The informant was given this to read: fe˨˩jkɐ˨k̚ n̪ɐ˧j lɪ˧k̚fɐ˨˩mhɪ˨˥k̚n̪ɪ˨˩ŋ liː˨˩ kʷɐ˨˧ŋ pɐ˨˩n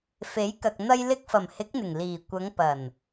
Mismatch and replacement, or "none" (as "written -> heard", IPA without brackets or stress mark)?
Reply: e˨˩ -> e˨˥